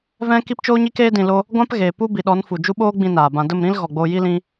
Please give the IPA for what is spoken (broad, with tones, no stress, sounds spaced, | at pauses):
v ɛ̃˦ k i˦ p t͡ʃ oː˦ ɲ iː˦ k eː˦ d ĩ˧ l o˦ | ɡʷ ã˦ p ɣ eː˨ p u˦ b i˨ ɗ ɔ˨˦ n f u˨ d͡ʒ u˦ ɓ oː˦ ɡ͡b ĩ˧ n aː˨ b ã˧ d ə˦˨ m ɾ ĩ˦ l ɣ ɔ˨ ɡ͡b oː˧ j i˦ l ĩ˦